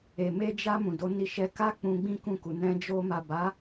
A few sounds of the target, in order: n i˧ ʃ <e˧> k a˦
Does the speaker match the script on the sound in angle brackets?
no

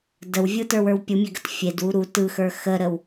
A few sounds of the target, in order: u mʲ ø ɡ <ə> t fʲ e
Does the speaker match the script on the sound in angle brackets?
yes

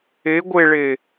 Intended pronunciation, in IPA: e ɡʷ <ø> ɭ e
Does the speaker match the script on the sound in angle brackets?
no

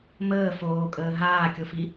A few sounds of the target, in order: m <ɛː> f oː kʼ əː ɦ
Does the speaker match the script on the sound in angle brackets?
no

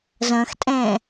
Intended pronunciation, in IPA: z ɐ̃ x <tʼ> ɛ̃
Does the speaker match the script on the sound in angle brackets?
yes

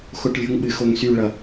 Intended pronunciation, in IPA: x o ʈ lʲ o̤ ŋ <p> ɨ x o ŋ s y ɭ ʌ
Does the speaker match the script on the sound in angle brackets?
no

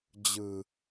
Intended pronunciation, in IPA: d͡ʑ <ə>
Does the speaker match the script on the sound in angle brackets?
no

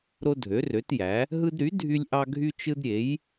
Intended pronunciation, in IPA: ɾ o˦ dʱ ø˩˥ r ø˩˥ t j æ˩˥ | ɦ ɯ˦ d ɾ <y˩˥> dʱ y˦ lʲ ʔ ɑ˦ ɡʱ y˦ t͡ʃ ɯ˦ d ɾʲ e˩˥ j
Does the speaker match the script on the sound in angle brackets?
yes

